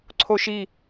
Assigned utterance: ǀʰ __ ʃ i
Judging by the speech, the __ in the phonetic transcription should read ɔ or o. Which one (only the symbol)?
o